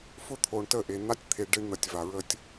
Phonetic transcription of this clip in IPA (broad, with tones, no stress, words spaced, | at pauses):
fʊ˦t̪ʰo˨ɳtə˦˨ʔe˨ n̪a˦tʲt̪ʰe˨ ɖe˦ɳn̪ə˨tʲ va˨ɹə˦tʲ